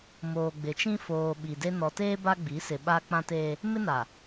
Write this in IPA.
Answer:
m oː˨ ɡ͡b ɪ˨ t͡ʃ ĩ˦ f oː˨ ɓ i˨ d e˦ n ɔ˨ t eː˦ b a˦ ɡ͡b i˨˦ s ɪ˨ ɓ a˦ k͡p ã˦ t eː˦ | m ɪ˦ n a˨

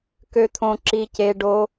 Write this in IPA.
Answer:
k ø˦ t̪ʰ õ˦ ǁ i˦ c e˦ ɖ o˦

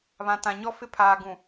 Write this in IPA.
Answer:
β ã˨ t ã˨ ɲ ɔ˦ f ɪ˦ pʰ aː˨ ɡ ũ˨

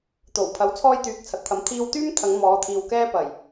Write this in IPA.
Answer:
t̪ o˨˩ w pʰ ɐ˨˥ w t͡sʰ ɔː˥ j t̪ yː˨ k̚ t͡sʰ ɐ˨ t̚ t̪ʰ ɐ˨˥ m t̪ʰ iː˧ w t̪ yː˥ m t̪ʰ ɐ˨˧ ŋ m ɔː˨˧ t̪ʰ iː˨ w k ɛː˥ p ɐ˨˩ j

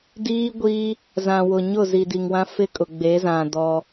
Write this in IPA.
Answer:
d iː˦ ɡʷ iː˦ | z ã˨ w ʊ˨ ɲ ʊ˦˨ z i˨ d i˨ ŋ w ã˦ f ɪ˦ kʼ ʊ˨ ɡ͡b e˨˦ z ã˨ d ɔ˦

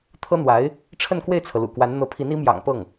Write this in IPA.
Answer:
t̪ʰ ɤ˥ n̪ w a˧˥ ɪ̯ | ʈ͡ʂʰ ə˥˧ n k w e˥˩ ɪ̯ t͡sʰ ɤ˩ l ṵ˨˩ k w a˧˥ n n̪ ɤ˧˥ pʰ i˧˥ n i˧˥ m j ɑ̰˨˩ ŋ p ɤ˥˩ ŋ

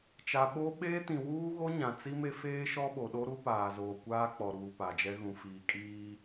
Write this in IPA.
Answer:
t͡ʃ a˨ ɓ o˦ ɓ eː˦ t ĩ˨ w uː˦ ɣ o˦ ɲ ã˨ t͡s i˦ m e˦ f eː˦ ʃ ɔ˦ ɓ o˨ ɗ o˦ ɾ u˦ p aː˨ z oː˨ kʷ aː˦ k͡p ɔ˨ ɾ uː˨ p a˨ d͡ʒ ɛ˦ ɣ ũ˨ f iː˨ kʼ iː˦

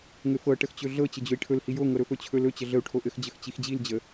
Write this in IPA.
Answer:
ŋ ɘ f ɤ ʈ ə x t͡ɕ ɵ ɮ ɤ t͡ɕ ɘ d͡ʑ ɵ i̯ ʈʰ ɵ l h i j o ŋ ɤ ɾ ɵ f ɵ t͡ɕʰ ɵ l ɵ t͡ɕ ə ɮ ə u̯ ʈʰ o ʔ ɘ x d͡ʑ ə x t͡ɕ i x d͡ʑ i l d͡ʑ ə

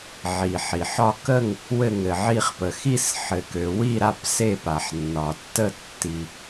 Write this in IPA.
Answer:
ʕ i˩ ħ i˩ ħ ɒ˥˨ k ə˥˨ ŋ | w ɘ˥˨ ŋ ɘ˩ ʕ i˥˨ χ p ə˩ x i˥˨ s ħ ɘ˩ k ø˩ w i˥˨ ɾ a˥˨ p s e˥˨ p a˩ ħ nː ɒ˩ tː ə˥˨ tː i˩

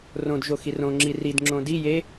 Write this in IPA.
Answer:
r õ d ʒ o x i r õ ŋ͡ǁ i r i d ŋ͡ǁ õ d i j e

